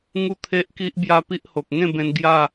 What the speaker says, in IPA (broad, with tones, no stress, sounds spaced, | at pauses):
ŋ u˥˧ t̪ʰ e˦ ʔ k i˦ ʔ b j a˦ p i˦ ʔ h o˨ k̚ ŋ ẽ˥˧ b ẽ˧ n ɡ j a˥˧